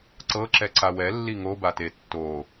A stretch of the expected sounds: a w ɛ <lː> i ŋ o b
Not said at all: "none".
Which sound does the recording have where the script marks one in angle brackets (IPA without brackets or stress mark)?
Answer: lː